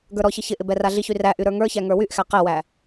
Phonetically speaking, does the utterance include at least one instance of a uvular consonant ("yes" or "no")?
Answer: yes